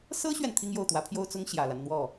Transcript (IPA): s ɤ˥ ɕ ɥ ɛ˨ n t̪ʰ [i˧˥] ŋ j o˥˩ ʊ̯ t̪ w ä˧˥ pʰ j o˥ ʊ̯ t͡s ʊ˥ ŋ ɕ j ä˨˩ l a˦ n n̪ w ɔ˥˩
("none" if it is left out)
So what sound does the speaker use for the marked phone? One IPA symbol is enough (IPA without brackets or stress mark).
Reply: i˥